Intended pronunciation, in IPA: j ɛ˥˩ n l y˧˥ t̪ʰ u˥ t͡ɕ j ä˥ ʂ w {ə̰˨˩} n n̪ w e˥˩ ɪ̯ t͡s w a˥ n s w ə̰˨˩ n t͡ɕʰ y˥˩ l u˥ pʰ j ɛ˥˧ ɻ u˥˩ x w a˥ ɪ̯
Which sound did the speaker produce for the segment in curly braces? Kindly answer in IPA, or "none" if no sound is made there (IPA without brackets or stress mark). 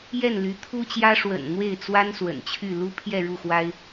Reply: ə̰˨˩